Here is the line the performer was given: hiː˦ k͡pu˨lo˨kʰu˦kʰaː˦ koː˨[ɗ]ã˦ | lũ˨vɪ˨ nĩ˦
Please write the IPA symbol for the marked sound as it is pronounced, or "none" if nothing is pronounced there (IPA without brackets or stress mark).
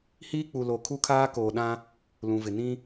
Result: ɗ